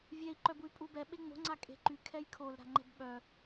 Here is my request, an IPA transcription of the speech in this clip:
vʲɛi̯ ǃœbuy̯pʼubɛ ɓeŋ͡mo̤ ŋ͡ǀakʼe̤ǃy kʰɛjkʰol ɾa̤ŋ͡ǃɛ̤bɓœ

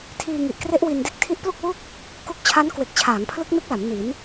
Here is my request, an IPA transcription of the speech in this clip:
tʰiː˧ŋi˨˩ʔkre˦˥ʔ wi˧nde˦˥k̚ tʰi˦˥ʔplu˥˩k̚wu˥˩k̚ | ku˦˥k̚t͡ɕʰa˦˥n kwe˨˩k̚t͡ɕʰaː˩˦ŋpʰlɯ˦˥k̚ nɯ˦˥k̚la˩˦m ni˩˦n

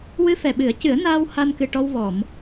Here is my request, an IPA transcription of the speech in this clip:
wɨ˧fɛ˨˩ɓɨ˨˩˦ə̯cɨ˨˩˦ə̯ naː˧w ha˧nkɨ˨˩ʈɔ˧wvɔ˨˩˨m

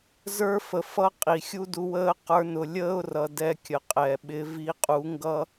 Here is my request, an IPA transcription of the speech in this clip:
zə˞˦fə˨fʌ˦ qʼi˨ xʲu˦du˧wəː˦ qə˞˧nʊ˨ lʲəː˦ʊ̯rʌ˨ dɛ˧kʲə˨qʼɛ˨ ɓɪ˨˦ vi˧qʼu˨˦ŋɡʌ˦

